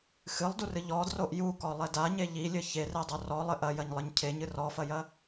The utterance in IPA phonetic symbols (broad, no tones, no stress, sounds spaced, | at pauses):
x ɨ lˠ d u r ɨ ʎ ɔ d r o ʔ j u k ɔ lˠ ɛ d a ɲ e ʎ i lʲ ɘ ç e r e dˤ o r ɔ lˠ ɘ ʔ ɐ j ɐ ɲ lˠ ɘ ɲ cʰ e ɲ ɨ r ɔ f ɐ j ɐ